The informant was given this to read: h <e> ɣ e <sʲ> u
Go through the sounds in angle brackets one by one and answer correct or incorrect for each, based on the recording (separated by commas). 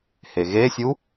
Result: correct, correct